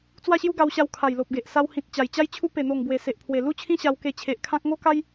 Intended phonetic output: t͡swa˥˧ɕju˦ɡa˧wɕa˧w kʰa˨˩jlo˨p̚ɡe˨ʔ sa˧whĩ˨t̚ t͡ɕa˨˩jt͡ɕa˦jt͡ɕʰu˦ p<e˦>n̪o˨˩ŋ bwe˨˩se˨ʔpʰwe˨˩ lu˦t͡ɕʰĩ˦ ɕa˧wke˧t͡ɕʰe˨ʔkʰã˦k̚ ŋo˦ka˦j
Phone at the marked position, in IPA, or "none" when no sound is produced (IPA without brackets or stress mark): e˨˩